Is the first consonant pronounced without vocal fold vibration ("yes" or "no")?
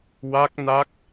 no